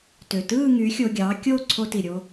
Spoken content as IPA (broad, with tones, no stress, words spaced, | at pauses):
tø˨˩tɯː˥˧ ŋy˨˥xʲo˧ɡʲɑː˨˥ kʲo˥˧ ǀʰo˧ti˨˩ɾʲo˧